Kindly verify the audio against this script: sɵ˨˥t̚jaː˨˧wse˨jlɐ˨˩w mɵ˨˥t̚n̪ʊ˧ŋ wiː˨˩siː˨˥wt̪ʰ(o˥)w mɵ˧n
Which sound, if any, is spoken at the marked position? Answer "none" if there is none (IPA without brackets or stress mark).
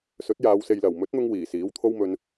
o˥